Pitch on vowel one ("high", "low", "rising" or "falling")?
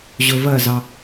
low